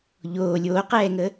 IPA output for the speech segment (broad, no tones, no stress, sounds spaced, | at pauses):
ʎ oː lʲ oː q ɛː ŋ ə